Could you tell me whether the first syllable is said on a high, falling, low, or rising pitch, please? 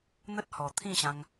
high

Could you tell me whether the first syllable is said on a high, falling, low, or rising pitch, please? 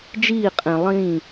falling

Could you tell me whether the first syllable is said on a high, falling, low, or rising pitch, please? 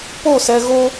falling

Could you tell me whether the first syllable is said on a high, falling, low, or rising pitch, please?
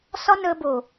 high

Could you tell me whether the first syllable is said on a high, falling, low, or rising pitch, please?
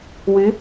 rising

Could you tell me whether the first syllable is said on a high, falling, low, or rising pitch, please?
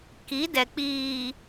rising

